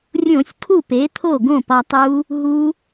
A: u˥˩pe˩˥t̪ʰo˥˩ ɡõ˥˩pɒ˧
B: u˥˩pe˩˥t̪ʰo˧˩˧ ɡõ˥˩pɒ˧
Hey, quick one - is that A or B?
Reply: A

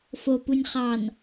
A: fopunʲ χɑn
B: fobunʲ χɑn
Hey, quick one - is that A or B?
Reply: A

